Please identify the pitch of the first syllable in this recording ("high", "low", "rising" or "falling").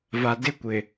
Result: low